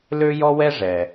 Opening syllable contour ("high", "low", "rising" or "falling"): high